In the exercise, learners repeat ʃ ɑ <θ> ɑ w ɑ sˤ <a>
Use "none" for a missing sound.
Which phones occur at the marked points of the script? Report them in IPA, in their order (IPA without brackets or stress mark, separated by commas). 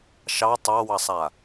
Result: tˤ, a